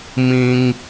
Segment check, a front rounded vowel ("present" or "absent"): absent